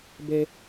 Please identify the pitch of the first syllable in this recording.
high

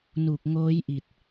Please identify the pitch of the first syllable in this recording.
low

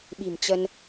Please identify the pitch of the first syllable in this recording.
low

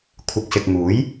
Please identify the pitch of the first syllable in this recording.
low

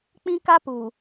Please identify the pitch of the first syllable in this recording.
high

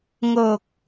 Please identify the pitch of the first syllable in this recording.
low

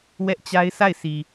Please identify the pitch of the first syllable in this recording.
high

